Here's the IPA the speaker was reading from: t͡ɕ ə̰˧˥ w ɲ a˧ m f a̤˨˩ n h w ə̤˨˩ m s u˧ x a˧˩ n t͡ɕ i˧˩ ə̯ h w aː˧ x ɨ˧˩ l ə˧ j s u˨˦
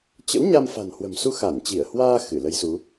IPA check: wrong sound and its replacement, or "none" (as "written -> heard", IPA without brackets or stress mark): none